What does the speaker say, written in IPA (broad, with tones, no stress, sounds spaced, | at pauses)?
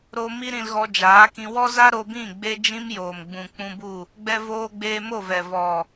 ɾ o˧ m i˦ ɾ ĩ˧ l ɣ ɔ˧ d͡ʒ aː˨˦ k ĩ˧ w ɔ˦ z a˦ ɾ o˧ b ĩ˦˨ ɡ͡b e˧ d͡ʒ ĩ˧ m j oː˨ m ɡ͡b ũ˨ k͡p ũ˧ b u˦˨ | ɡ͡b ɛ˧ v oː˧ ɡ͡b eː˧ m o˦˨ v ɛ˨ v ɔ˨